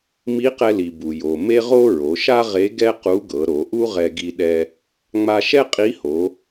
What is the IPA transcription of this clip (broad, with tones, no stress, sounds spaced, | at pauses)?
m i˧˥ q ɛ˧ l i˩ b u˩ j o˩ m e˥ ʁ o˥ ɹ o˩˧ ʃ a˥ ʁ e˧˥ ɡ ɛ˥ q u˧˥ ɡ ɤ˩˧ ɾ o˩˧ ʔ u˥ ʁ ɛ˧ ɡ i˧ ɗ ɛ˧ | ŋ͡m a˧ ʃ ɛ˥ qʼ i˧˥ h o˩˧